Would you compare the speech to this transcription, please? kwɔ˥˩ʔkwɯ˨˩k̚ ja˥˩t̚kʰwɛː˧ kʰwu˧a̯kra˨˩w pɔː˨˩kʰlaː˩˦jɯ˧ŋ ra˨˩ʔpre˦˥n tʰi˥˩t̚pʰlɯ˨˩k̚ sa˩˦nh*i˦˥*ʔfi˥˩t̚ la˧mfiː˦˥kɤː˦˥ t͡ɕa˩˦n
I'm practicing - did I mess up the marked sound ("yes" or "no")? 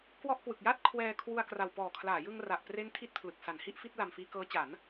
yes